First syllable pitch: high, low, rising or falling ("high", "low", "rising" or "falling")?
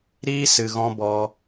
high